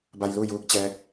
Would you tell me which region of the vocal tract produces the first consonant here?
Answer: lips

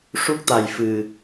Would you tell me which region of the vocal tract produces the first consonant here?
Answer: retroflex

